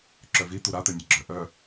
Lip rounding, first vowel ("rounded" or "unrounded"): rounded